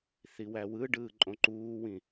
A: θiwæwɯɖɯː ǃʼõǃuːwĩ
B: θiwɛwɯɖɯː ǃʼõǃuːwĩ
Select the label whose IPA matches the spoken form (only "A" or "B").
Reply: A